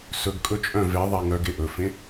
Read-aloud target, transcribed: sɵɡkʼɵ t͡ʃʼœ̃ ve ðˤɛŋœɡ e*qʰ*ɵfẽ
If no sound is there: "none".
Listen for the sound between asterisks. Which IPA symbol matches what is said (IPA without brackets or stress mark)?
ʔ